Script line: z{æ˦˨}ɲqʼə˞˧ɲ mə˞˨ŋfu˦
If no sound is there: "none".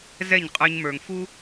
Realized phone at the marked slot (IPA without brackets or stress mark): ɛ˦˨